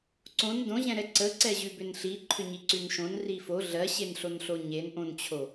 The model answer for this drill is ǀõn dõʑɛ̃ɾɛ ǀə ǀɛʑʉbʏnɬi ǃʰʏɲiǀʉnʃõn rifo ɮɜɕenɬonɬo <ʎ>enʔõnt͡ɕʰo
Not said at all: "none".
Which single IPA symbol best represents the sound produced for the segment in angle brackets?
ɲ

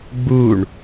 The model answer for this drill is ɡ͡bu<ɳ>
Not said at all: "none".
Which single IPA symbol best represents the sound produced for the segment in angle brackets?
ɳ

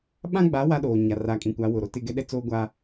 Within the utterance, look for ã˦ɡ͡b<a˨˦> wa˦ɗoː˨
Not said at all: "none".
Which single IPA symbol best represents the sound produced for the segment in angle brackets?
a˨˦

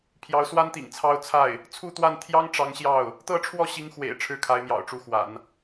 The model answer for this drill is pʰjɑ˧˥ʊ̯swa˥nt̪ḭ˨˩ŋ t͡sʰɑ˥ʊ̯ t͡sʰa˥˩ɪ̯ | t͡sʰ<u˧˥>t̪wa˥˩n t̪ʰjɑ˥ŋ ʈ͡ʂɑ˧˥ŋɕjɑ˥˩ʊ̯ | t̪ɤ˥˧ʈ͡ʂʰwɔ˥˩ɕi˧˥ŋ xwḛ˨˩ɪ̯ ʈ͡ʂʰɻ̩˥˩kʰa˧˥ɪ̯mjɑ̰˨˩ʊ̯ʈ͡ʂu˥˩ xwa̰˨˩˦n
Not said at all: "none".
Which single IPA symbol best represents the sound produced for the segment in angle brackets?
u˥˧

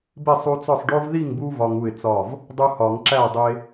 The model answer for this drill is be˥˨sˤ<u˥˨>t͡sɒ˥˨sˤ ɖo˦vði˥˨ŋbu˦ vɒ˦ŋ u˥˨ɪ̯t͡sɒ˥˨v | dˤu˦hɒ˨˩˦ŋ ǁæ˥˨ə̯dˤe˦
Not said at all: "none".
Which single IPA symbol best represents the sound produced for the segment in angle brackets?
u˦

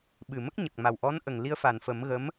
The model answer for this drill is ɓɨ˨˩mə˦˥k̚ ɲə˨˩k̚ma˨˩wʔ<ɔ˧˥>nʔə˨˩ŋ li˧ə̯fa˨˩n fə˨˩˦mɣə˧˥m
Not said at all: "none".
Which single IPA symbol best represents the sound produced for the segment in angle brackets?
ɔ˧˥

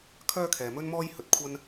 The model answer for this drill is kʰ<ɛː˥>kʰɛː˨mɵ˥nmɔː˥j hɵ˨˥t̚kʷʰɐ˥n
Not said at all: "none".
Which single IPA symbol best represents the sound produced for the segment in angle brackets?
œː˥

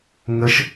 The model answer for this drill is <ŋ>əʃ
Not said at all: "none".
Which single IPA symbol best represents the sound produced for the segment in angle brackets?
ŋ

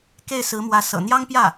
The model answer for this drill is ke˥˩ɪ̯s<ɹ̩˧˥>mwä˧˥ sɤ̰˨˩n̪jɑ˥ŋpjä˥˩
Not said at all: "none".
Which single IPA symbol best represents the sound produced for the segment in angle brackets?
ɹ̩˧˥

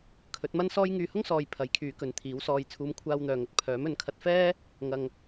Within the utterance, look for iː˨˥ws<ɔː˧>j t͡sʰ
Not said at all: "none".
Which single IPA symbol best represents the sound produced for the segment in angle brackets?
ɔː˧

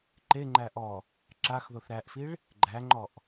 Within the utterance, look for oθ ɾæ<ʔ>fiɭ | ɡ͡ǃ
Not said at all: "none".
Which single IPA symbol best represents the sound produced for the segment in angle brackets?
ʔ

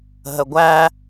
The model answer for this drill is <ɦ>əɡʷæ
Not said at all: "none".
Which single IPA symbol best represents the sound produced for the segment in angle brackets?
ɦ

